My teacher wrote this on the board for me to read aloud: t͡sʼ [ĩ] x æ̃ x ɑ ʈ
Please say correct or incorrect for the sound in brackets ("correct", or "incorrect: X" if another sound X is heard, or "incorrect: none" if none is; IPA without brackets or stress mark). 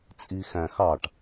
incorrect: i